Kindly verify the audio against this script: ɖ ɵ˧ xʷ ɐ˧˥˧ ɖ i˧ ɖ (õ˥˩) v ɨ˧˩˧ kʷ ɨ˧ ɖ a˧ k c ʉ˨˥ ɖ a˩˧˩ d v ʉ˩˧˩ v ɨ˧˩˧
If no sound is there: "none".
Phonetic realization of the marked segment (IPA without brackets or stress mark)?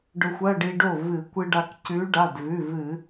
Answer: o˥˩